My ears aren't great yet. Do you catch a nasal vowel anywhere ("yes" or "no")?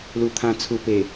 yes